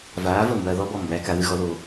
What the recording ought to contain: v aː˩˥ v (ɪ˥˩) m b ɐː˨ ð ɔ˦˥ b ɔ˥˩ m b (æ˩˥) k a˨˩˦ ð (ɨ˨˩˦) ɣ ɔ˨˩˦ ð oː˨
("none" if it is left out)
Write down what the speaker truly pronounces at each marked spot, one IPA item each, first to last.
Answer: ə˥˩, æ˩˥, ɨ˨˩˦

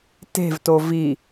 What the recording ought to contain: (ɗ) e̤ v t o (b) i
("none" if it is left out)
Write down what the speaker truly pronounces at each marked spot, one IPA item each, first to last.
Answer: t, v

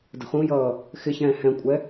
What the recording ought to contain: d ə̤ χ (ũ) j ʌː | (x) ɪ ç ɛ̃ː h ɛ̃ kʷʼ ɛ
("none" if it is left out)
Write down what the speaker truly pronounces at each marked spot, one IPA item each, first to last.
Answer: ũ, x

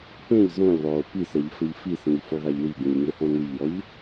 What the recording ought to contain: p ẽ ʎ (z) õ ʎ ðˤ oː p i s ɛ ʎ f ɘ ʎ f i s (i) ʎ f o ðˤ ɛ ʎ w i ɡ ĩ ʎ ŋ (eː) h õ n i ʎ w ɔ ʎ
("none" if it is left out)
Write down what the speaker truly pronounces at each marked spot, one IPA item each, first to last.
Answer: z, ĩ, e

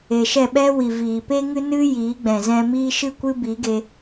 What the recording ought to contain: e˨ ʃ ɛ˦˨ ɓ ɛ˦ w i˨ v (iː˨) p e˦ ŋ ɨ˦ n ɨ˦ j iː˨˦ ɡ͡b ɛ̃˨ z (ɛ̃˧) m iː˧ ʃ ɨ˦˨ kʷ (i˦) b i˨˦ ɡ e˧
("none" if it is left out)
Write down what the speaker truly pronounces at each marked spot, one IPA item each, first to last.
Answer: iː˨, ɛ̃˧, ɨ˦

